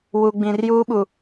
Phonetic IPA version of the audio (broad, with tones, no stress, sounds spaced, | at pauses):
w u˨ ɡ͡b ĩ˨ r j uː˦ ɓ u˨